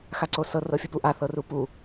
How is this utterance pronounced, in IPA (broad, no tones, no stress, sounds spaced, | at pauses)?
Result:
x a ǀ o s ɤ r ɤ fʲ u p u ʔ a θ ɤ r u p u